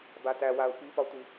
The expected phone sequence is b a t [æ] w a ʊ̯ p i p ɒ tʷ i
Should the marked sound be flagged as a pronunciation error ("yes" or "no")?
no